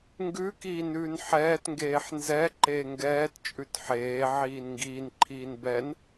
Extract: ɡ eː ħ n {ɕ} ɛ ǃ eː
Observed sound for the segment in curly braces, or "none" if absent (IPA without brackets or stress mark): z